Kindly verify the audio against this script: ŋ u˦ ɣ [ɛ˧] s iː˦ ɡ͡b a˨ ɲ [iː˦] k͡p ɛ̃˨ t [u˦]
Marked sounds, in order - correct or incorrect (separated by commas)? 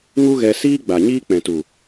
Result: correct, correct, incorrect